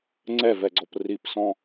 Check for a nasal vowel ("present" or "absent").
present